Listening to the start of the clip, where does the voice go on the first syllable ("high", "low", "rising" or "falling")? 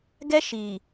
high